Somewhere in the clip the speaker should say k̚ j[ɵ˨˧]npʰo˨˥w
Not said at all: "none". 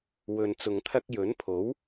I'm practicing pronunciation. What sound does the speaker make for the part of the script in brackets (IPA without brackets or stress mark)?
ɵ˨˥